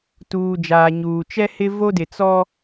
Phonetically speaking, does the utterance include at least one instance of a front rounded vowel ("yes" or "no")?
no